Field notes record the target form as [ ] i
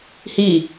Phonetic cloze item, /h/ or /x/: h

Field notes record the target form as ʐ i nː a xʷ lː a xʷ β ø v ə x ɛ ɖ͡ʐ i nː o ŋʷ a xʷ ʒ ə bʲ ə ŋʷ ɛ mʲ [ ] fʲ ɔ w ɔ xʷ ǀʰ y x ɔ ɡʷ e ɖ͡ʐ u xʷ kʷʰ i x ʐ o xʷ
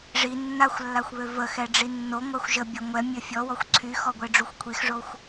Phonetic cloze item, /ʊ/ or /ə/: ə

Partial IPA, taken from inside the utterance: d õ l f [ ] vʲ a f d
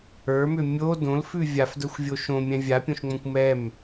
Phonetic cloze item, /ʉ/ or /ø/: ʉ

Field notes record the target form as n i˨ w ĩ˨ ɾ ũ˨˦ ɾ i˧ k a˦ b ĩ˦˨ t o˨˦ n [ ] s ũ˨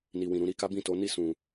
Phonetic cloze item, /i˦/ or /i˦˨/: i˦˨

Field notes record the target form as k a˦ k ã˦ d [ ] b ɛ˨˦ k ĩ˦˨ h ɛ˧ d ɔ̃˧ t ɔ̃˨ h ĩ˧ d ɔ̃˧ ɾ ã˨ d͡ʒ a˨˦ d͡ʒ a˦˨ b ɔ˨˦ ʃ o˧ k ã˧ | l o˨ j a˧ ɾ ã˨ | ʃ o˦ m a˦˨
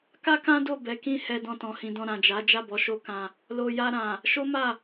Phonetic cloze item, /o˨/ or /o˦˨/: o˦˨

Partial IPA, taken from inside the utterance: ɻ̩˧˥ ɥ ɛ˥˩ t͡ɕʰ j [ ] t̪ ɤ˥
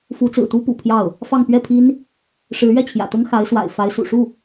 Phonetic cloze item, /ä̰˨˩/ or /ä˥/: ä̰˨˩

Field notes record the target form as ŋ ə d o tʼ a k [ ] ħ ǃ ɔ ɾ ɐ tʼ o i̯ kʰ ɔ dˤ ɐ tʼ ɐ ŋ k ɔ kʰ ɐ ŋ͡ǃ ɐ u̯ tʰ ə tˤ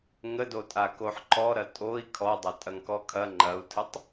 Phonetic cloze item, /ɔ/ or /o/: o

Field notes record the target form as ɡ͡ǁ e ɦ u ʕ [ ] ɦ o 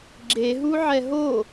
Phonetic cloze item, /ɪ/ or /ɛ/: ɛ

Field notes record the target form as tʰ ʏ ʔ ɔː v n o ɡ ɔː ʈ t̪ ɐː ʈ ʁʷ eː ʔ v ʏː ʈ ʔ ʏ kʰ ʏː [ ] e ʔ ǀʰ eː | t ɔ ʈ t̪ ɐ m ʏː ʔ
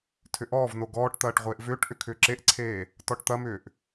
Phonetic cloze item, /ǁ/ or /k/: ǁ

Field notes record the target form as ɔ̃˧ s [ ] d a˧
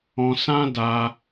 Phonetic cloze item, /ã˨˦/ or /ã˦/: ã˦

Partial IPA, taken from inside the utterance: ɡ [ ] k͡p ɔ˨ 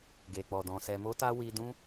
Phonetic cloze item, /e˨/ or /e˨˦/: e˨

